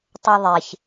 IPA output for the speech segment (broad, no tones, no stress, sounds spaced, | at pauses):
tˤ ɘ ðˤ e ç